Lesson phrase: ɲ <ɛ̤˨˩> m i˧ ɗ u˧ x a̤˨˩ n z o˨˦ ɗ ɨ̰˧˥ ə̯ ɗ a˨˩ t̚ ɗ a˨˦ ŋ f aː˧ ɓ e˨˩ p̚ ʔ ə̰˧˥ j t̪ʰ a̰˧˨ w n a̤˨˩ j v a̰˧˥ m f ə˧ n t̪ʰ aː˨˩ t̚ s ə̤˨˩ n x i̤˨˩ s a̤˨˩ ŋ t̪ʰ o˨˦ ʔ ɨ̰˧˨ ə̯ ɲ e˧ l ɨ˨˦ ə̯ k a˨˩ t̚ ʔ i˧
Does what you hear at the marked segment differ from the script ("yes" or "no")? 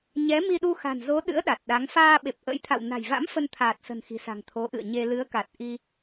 yes